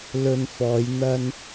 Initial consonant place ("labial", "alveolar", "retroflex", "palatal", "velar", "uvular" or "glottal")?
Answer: alveolar